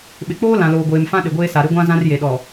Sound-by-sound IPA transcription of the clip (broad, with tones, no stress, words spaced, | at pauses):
ɓɪ˨k͡poː˦ lã˨ loː˨ɡʷeː˨mfã˦ ɗɪ˨ɡʷeː˦sa˨ ɾɪ˦ɡʷã˦ zã˦rje˨ɗɔ˨